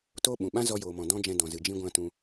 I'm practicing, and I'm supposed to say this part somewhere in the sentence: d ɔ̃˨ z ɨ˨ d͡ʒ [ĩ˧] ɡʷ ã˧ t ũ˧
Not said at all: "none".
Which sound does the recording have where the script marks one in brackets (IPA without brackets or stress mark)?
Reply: ĩ˧